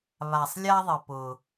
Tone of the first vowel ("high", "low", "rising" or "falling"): low